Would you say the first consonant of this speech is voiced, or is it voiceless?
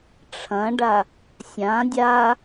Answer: voiceless